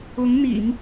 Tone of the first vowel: rising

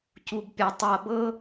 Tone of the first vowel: low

